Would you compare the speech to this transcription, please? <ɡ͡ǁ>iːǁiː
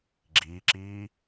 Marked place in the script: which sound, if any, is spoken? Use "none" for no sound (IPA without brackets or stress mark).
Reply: ɡ͡ǁ